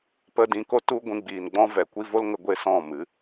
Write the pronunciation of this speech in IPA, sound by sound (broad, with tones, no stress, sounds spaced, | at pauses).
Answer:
p ə˧ d ĩ˨˦ k o˦ t u˦ ɡʷ ĩ˧ ɡ͡b iː˨ n ɡ͡b ɔ̃˦ v ɛ˨ kʷ i˦ v o˦ l ŋ ə˧ ɡʷ e˦ s ɔ̃˦˨ m ɨ˨˦